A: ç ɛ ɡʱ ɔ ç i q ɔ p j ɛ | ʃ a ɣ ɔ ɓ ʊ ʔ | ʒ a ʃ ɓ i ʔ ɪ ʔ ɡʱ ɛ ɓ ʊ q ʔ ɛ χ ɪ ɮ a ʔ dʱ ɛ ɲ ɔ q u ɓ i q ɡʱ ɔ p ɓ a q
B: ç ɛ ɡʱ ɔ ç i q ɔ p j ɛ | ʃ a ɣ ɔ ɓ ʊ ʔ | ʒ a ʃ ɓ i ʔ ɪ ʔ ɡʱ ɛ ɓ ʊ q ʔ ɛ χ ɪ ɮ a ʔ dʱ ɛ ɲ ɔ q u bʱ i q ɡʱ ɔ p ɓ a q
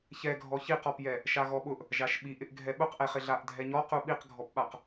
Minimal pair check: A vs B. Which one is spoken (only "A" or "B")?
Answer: A